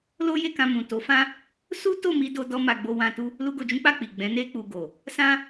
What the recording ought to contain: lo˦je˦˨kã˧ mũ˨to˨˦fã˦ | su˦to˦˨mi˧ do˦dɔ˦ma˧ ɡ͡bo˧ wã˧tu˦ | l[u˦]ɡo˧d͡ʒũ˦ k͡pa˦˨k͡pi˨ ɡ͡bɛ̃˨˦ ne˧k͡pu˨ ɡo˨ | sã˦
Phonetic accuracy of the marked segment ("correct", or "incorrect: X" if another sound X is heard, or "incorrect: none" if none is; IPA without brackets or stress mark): correct